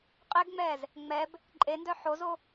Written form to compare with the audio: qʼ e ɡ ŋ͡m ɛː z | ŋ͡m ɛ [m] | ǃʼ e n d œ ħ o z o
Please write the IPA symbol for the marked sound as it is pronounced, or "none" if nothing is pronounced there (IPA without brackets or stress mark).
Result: b